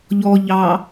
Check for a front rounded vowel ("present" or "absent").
absent